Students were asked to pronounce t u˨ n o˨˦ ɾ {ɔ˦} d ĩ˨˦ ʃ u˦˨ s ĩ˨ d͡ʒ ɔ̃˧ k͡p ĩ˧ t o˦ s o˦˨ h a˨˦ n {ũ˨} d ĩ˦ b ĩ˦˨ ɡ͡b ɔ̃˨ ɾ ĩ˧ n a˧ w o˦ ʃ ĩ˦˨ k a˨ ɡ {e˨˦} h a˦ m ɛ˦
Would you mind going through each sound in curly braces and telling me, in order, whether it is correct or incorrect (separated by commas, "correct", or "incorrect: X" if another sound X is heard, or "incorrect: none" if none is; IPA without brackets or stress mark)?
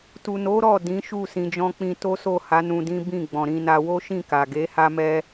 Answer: incorrect: ɔ˦˨, incorrect: ũ˧, correct